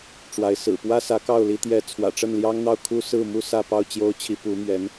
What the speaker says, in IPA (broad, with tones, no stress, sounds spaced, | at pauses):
ʈ͡ʂ w a˧˥ ɪ̯ s ɹ̩˨˩ p w ä˥ s ä˧˥ k ɑ˥˩ ʊ̯ l i˧˥ t̪ j ɛ˧˥ t͡sʰ w ä̰˨˩ ʈ͡ʂ ə˥˩ n l j ɑ˥ ŋ n̪ ɑ˥˩ ʊ̯ kʰ u˥ s ɹ̩˥˩ m u˥ s ä˥˧ p ɑ˥˩ ʊ̯ t͡ɕ j o˥ ʊ̯ t͡ɕʰ i˧˥ p u˧˥ m ɥ ɛ˧˥ n